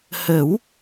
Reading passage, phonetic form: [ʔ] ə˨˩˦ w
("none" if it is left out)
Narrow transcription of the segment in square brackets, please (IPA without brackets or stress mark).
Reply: h